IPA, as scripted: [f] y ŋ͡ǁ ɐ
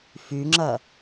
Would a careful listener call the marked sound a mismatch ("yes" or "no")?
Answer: no